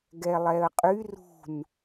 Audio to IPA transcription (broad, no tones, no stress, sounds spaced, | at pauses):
ɡ ɛ lˠ ɛ ə̯ qʼ y r ṳ n